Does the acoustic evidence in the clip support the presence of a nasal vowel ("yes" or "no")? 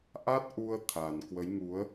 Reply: no